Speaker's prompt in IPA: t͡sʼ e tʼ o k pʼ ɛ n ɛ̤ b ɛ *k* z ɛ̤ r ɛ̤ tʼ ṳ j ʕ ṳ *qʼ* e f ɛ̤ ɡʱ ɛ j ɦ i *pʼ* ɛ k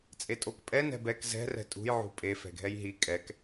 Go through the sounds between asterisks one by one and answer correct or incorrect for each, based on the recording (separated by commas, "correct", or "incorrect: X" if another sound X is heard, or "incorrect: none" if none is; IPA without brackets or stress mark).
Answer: correct, incorrect: pʼ, incorrect: kʼ